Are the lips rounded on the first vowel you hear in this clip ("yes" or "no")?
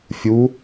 yes